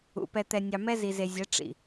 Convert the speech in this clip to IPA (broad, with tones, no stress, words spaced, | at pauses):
ṵ˨ pɛ˨t̪ɛ˨nʲɑ˨ mɛ˦ zi˨ze˨zʲɛ˨˦ ʈ͡ʂḭ˨